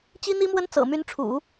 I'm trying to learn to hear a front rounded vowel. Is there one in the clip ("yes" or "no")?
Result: yes